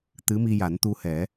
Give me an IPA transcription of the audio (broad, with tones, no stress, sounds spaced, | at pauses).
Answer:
t̪ ɨ˧˥ m i˧ j a˨˩˦ n t̪ u˧ h ɛ˨˩˦